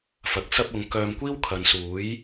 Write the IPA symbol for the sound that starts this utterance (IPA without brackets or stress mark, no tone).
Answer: f